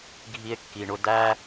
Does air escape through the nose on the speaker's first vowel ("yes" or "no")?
no